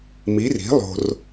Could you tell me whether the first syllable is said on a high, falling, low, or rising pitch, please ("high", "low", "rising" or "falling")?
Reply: rising